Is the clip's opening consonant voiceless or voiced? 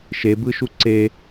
voiceless